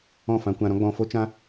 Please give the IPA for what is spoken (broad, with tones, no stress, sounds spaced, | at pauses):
ɔ̃˦˨ f ã˧ kʷ ã˧ ɾ ɔ̃˦ ɡ͡b ɔ̃˧ f o˦ t͡ʃ ã˦